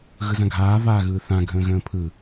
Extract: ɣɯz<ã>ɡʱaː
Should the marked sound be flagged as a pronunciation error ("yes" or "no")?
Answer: no